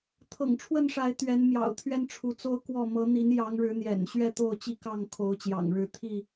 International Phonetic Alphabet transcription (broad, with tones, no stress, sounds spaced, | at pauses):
t̪ʰ ɤ̰˨˩ ŋ ʈ͡ʂʰ w ə˥˨ n ʂ a˨˦ ɪ̯ t̪ ɥ ɛ˨˦ n m j ɑ̰˨˩ ʊ̯ t̪ʰ ɥ ɛ˦ n ʈ͡ʂʰ u˨˦ t͡s o˦ ʊ̯ k w ɔ˥˨ m ɤ˨˦ n̪ i˨˦ n j ɑ˨˦ ŋ ɻ ɻ̩˨˦ n̪ j ɛ̰˨˩ n ɕ ɥ ɛ˥˨ t̪ o˥˨ ʊ̯ t͡ɕ i˥˨ k ɑ˥˨ ŋ kʰ o˨˦ ʊ̯ t͡ɕ j ɑ̰˨˩ ŋ ɻ ɻ̩˥˨ t̪ʰ i˥˨